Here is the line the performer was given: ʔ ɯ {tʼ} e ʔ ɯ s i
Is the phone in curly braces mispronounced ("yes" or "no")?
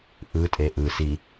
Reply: no